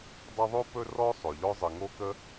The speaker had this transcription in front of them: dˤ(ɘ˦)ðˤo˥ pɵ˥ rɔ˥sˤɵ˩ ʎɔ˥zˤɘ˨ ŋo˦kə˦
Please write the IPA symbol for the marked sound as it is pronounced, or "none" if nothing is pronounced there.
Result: ɘ˦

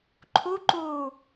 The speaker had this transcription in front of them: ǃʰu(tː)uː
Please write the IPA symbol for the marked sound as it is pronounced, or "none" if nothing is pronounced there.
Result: ǃ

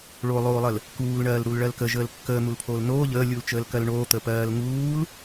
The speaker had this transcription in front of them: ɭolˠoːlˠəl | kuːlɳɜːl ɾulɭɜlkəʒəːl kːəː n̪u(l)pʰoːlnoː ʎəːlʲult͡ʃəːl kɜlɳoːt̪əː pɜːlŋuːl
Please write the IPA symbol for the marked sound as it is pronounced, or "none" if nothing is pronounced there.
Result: l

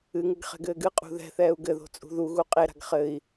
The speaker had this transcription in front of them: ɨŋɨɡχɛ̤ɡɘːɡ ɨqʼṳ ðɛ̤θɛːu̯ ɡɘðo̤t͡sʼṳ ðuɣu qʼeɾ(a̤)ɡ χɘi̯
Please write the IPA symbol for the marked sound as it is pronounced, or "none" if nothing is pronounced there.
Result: a̤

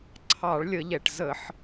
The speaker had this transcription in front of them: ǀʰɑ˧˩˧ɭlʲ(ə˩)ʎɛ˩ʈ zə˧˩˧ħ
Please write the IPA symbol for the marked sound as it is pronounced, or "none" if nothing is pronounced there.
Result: ə˧˩˧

